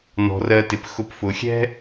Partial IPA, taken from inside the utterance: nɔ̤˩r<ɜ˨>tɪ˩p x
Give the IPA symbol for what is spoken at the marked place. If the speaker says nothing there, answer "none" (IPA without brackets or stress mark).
ɜ˨